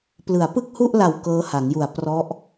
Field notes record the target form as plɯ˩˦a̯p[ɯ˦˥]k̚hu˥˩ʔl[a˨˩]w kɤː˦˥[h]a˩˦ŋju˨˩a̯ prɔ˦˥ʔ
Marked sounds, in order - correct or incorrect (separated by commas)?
incorrect, correct, correct